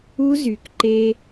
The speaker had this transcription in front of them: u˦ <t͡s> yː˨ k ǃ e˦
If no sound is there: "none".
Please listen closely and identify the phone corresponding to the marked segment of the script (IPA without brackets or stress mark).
z